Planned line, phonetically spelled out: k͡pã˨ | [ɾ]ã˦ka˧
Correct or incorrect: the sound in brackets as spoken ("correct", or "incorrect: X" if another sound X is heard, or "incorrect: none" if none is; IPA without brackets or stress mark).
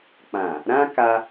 correct